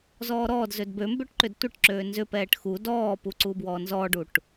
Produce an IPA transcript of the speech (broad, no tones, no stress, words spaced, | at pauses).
zɔːɾɔːdzød bømbøʈ ǃʏdtʷəʈǁøː nzʏpɛːʈ xu dɔːpu ǀubwɔnzɔɖuʈ